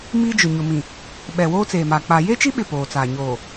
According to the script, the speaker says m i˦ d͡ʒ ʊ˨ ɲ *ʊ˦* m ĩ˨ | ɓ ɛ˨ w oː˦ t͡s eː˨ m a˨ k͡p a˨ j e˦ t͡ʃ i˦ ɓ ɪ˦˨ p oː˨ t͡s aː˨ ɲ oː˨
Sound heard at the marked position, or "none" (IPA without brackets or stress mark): ʊ˨